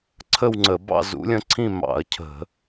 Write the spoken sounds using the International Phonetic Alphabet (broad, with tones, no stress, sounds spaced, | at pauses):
ǀʰ ə˥˧ w ŋ͡ǀ ə˧˩˧ b ɑ̰˥˧ z ṵ˧˥ lʲ ə̃˧˥ ǀʰ ĩ˥˧ m ɑ̰˧˩˧ ɐ̯ cʰ ə̤˧˩˧